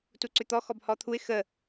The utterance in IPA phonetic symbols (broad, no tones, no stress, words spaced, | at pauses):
tuǀʏt̪ɔ xɔbhɔt̪ʰuɪ̯ xə